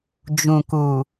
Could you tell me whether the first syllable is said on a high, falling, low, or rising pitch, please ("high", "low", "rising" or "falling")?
low